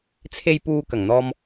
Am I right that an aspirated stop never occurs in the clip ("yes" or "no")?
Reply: no